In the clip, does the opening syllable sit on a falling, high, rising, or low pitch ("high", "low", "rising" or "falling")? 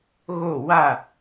falling